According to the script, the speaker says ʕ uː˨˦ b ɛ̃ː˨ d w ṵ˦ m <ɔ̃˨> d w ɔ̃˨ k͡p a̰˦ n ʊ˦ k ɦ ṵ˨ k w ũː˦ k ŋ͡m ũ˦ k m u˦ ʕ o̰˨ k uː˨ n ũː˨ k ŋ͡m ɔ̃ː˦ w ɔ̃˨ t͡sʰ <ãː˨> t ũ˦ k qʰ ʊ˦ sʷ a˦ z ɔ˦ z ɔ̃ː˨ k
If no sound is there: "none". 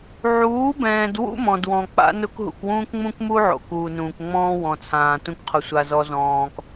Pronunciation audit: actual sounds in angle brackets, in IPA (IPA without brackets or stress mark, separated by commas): ɔ̃˨, ãː˨